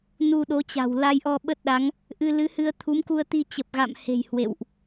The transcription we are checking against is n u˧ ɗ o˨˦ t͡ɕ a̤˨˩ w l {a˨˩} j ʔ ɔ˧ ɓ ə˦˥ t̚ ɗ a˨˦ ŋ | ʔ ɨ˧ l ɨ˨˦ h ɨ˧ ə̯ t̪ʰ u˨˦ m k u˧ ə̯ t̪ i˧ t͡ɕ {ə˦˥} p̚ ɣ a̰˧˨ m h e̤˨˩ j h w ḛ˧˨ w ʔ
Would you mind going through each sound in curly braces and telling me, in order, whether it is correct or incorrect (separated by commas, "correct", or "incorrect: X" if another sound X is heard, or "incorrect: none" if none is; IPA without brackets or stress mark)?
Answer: incorrect: a˧, incorrect: ə˨˩